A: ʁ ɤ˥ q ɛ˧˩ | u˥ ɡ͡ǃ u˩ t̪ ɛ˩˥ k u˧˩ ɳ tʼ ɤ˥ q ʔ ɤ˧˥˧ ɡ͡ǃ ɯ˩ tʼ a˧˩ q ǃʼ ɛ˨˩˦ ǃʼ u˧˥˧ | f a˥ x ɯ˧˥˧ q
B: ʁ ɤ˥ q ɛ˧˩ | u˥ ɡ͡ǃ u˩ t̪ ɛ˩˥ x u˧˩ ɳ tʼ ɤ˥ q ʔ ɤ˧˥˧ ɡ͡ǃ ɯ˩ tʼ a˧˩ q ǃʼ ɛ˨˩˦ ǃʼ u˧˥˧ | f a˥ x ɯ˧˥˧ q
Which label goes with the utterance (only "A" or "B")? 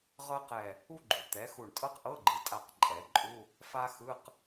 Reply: B